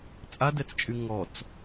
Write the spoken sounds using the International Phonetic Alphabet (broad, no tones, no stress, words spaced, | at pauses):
t͡sʼadɛt͡st͡ʃʼy ŋɔt͡s